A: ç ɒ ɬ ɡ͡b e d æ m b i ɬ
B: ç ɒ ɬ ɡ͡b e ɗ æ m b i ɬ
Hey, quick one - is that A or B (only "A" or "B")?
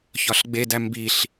A